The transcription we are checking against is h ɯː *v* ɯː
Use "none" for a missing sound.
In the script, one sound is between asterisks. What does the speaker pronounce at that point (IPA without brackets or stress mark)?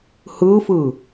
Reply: f